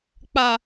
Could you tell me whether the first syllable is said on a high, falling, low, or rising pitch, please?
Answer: low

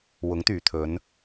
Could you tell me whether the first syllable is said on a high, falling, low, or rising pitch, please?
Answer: rising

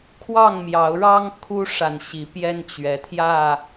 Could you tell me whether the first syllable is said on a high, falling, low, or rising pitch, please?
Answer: falling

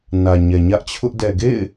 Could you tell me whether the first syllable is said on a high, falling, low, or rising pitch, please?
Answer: low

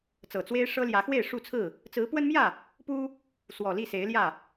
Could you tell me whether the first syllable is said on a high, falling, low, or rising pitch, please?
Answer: low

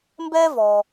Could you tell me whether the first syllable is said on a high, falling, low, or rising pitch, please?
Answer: high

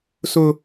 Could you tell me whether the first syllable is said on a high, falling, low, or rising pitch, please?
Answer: high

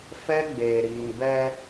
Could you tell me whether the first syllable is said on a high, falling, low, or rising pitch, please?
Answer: high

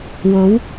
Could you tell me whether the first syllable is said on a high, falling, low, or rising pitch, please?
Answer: rising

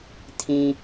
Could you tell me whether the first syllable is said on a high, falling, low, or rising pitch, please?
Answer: low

